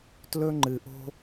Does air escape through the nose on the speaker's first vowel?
no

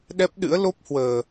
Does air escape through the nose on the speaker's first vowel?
no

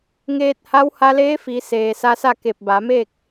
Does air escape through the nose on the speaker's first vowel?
no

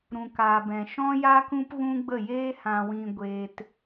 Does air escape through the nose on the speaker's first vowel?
yes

